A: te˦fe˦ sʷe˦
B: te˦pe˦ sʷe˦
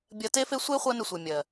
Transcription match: A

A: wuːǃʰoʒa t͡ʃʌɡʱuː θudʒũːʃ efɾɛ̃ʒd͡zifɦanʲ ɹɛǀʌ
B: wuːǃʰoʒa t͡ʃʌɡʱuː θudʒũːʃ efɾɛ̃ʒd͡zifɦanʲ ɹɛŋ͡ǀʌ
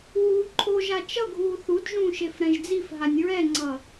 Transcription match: B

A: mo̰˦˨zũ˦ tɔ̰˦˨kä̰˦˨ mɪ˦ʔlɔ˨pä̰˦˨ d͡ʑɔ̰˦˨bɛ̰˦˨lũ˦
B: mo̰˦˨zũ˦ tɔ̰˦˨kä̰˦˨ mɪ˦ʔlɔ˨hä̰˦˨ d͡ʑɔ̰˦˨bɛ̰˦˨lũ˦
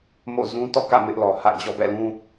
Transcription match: B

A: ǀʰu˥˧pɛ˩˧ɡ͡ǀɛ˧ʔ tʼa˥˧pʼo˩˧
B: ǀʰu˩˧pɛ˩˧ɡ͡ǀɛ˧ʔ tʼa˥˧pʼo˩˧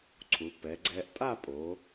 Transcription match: B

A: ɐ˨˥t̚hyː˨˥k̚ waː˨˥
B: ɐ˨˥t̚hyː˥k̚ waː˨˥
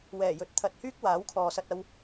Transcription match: B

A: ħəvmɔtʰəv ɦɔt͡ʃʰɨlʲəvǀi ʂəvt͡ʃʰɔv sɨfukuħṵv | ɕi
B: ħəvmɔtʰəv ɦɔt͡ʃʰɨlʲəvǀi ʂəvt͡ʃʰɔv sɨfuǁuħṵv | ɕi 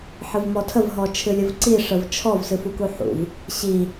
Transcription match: A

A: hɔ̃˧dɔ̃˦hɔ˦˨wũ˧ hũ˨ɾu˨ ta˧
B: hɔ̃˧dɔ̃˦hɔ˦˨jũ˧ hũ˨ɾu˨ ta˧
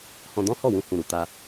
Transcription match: A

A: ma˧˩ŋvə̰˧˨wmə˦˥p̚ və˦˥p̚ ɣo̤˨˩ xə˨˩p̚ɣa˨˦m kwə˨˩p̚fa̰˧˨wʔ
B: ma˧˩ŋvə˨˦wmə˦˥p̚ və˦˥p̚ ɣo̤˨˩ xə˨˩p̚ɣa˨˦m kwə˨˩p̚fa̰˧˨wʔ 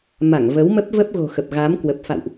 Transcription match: B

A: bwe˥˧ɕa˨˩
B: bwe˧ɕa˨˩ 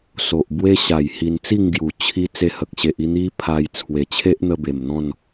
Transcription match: B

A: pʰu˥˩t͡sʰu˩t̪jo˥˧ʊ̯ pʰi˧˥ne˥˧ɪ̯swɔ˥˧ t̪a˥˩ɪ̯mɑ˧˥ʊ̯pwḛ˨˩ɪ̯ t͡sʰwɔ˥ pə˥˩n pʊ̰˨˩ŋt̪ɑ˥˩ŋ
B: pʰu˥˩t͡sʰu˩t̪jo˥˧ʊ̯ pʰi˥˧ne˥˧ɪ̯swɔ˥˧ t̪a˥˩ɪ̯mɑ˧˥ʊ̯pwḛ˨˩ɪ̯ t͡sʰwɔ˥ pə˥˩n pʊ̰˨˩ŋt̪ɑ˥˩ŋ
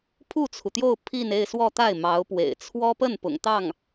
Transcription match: B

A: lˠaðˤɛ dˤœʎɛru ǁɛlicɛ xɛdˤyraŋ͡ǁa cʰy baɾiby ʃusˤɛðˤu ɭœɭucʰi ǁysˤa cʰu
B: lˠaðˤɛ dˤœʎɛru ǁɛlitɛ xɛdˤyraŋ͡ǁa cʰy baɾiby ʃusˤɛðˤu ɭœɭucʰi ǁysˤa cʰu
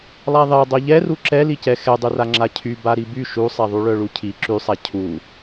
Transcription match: A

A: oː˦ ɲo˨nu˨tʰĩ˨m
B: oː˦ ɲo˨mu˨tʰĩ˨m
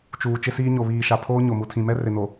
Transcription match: B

